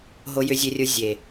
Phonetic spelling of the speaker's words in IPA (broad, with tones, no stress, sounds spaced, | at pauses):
ɦ o˨ j ʏ˨ zʲ e˨ rʲ o˨ zʲ e˨